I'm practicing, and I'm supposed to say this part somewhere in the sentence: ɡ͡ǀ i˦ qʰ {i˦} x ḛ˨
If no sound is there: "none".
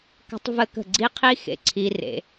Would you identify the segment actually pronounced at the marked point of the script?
i˦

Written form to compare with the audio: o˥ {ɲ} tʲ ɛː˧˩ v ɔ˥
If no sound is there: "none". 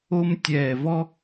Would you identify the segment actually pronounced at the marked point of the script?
m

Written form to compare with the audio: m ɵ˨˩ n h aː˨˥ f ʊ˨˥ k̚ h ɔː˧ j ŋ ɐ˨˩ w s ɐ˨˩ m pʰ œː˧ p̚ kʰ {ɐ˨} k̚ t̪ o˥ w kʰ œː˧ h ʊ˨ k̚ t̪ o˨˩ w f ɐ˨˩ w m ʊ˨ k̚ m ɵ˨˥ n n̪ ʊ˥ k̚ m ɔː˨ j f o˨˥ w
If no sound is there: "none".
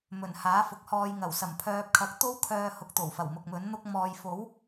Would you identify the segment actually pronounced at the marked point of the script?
ɐ˨˥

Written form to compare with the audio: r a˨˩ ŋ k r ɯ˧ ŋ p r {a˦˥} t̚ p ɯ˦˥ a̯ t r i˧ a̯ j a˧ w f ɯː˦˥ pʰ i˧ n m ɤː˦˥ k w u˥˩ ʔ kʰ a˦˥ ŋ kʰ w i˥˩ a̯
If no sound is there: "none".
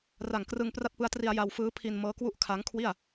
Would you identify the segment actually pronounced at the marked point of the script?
a˥˩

